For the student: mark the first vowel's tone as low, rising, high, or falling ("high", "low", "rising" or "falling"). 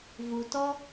low